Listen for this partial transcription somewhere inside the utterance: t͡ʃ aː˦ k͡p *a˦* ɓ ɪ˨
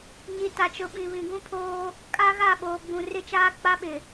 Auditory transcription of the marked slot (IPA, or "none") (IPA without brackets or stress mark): a˦